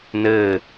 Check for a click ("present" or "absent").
absent